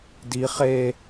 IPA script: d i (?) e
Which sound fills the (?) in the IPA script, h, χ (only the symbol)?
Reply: χ